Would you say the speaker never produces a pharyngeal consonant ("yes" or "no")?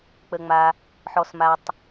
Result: no